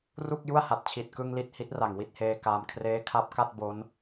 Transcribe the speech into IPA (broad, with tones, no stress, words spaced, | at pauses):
ru˥˩k̚ju˥˩a̯ha˨˩t̚ t͡ɕʰi˨˩t̚kɯ˧ŋ li˥˩t̚ hi˦˥t̚ ra˨˩ŋwi˥˩t̚heː˧kaː˧m kʰreː˦˥kʰa˦˥p̚ka˥˩t̚ bo˦˥n